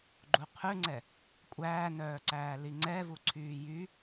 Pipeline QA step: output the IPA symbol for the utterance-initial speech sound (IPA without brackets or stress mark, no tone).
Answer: ɡ͡ǃ